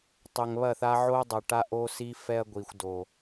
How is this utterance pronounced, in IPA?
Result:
tˤʏ˨ŋβɐ˦˨θa˦ ʕo˦dˤɐ˨ʈa˦ ʔo˦si˦ fɛ˦ɐ̯ ɡʷi˨xʷdo˨

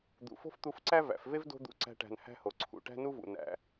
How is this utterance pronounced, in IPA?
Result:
d̪ṵ˨fo̤˦ft̪u˧fǀæ˦ væ̰˨˦f ve˦v do̤˦d̪ṵ˧ ǀæ̤˧ʈæ̤˨n hæ̤˦ho˨ǀʰṵ˨ ʈæ̤˦nu˦vṵ˨ næ̰˨

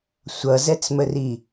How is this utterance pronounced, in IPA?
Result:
sʷʌzɛt͡sməri

